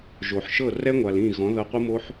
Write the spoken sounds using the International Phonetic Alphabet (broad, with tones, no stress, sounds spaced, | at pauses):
ʒ o˨ ħ ʃ ɤ˦˨ r ɛ˦ ŋʷ a˨ l ĩ˦˨ ɣ ɔ̃˨˦ ð ɤ˧ qʷ ɯ˦ m o˦ ħ